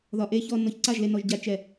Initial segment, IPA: ð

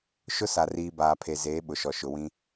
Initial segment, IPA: ʃ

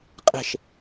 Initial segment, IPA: qʼ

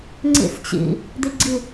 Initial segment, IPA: ŋ͡ǀ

